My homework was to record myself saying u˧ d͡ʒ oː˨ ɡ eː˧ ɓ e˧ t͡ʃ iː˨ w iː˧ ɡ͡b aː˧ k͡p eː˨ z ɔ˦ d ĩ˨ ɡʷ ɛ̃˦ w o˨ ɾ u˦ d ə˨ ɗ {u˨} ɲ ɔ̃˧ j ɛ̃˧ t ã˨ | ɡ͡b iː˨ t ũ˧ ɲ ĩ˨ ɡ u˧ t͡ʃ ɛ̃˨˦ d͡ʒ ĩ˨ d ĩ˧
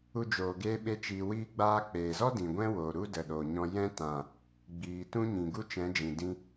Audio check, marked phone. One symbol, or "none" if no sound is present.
o˨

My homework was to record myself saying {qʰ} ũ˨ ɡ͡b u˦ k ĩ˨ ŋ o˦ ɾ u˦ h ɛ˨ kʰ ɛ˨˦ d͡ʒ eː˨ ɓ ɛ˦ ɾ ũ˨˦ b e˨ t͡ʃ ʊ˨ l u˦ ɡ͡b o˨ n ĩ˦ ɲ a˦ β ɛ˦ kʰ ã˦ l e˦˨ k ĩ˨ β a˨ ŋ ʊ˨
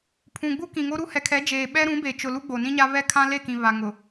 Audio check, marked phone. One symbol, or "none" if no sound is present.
pʰ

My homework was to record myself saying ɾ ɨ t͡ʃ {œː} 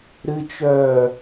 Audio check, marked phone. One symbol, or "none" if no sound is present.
œː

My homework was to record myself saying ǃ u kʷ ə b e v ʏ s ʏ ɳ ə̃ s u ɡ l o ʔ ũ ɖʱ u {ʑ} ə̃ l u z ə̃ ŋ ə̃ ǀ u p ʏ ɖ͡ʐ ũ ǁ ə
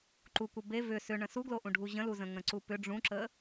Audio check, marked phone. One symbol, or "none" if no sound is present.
ʑ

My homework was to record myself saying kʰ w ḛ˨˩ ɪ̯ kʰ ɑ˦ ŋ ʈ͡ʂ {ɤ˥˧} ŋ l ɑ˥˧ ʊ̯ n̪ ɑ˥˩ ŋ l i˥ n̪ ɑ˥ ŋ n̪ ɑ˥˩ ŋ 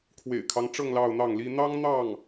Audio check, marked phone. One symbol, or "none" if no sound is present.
ɤ˥˧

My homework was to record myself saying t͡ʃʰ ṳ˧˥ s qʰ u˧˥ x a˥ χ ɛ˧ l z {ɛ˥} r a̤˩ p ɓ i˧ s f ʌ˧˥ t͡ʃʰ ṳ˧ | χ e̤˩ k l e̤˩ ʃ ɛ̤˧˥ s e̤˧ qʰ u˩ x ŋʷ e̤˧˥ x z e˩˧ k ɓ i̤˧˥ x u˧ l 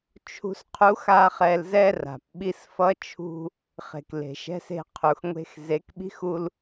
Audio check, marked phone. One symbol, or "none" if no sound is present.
ɛ˥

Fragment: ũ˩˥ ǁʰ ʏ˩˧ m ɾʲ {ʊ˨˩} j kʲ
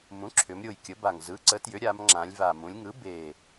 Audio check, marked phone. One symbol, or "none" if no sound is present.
ʊ˨˩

